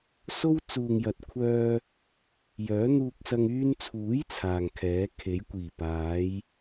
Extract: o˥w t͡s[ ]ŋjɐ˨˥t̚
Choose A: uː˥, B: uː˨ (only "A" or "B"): B